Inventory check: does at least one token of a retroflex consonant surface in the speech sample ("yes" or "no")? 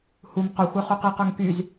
no